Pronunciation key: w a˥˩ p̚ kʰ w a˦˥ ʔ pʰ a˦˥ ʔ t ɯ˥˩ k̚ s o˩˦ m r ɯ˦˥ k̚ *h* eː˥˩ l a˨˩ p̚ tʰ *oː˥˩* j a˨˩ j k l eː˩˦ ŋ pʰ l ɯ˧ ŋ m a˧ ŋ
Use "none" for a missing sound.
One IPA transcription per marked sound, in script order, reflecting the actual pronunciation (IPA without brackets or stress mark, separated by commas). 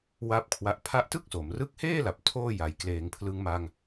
h, oː˥˩